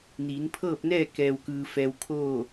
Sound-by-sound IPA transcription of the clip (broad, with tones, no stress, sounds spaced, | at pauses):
n iː˩˧ n pʰ ɤː˥˨ p̚ n ɛː˥˨ k ɛː˧ w k ɯː˧ f ɛː˧ w kʰ oː˥˨